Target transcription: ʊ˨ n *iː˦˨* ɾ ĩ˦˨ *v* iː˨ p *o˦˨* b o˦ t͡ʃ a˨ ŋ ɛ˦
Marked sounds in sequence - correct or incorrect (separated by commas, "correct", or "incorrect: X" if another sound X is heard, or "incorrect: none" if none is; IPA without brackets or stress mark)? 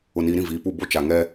incorrect: iː˨, correct, incorrect: u˦˨